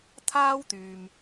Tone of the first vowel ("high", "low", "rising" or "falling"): high